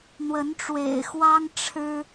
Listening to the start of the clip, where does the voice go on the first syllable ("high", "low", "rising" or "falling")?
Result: rising